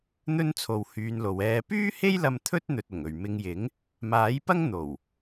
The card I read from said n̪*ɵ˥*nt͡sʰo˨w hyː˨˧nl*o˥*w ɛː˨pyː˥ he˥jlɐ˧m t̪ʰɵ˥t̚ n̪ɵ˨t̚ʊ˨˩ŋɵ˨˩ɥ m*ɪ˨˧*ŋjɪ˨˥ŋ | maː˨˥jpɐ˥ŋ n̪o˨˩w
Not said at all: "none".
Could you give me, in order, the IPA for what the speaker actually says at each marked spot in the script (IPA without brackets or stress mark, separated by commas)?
ɵ˥, o˨, ɪ˨˧